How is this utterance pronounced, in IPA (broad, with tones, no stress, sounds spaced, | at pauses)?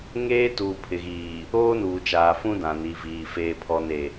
ŋ eː˦ t uː˨ pʰ ɪ˨ ɣ iː˨ | oː˦ n uː˨ t͡ʃ aː˨ f ũ˦ d ã˨ n i˨ v iː˨ f eː˨ pʰ ɔ˨ n e˨